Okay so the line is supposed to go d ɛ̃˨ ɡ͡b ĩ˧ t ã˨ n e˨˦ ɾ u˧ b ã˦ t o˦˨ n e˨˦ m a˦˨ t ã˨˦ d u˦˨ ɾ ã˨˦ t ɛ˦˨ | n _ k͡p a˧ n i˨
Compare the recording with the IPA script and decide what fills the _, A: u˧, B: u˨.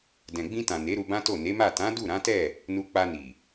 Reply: A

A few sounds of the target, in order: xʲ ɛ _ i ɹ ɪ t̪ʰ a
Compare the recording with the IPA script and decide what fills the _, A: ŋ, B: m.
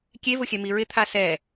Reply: B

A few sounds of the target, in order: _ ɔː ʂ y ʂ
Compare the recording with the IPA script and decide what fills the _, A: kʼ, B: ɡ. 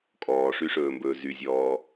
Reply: A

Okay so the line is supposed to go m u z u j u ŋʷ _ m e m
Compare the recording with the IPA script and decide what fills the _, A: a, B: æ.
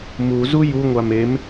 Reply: A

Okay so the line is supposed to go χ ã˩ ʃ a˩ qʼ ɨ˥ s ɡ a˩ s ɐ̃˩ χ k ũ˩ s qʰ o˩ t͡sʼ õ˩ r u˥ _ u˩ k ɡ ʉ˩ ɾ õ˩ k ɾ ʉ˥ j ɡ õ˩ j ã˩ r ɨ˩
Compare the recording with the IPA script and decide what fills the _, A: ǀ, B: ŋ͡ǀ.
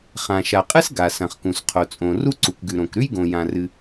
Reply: A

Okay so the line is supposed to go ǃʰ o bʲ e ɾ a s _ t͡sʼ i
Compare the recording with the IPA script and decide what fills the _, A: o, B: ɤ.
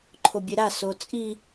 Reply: A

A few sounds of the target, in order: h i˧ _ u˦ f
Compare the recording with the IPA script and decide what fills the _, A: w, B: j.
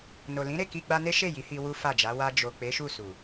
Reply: A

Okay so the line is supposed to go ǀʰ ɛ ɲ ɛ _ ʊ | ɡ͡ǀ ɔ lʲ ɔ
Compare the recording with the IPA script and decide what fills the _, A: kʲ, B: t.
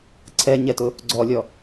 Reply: B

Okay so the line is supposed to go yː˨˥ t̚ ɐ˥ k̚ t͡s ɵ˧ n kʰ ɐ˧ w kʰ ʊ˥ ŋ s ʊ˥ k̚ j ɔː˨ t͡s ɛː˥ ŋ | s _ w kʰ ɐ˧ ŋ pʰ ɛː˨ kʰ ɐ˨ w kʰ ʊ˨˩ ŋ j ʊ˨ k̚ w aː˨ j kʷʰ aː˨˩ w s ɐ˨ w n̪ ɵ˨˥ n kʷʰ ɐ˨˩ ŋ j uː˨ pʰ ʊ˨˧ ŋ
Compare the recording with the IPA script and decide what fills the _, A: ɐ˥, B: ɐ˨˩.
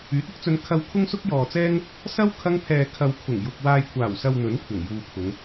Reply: A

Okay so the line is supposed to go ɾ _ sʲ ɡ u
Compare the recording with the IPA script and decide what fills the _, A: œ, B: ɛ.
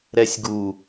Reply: B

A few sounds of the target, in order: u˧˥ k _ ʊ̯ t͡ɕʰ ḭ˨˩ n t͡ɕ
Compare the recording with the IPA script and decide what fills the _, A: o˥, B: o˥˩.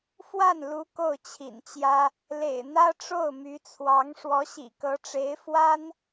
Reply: B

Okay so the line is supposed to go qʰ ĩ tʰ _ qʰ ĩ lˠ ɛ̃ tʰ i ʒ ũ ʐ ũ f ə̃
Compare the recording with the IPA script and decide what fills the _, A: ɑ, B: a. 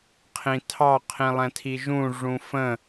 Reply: A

